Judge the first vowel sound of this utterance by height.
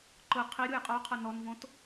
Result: high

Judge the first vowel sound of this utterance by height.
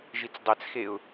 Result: high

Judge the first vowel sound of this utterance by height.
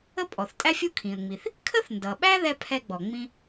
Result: mid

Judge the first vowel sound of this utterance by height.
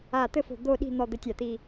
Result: low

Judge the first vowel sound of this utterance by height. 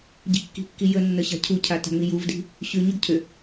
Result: high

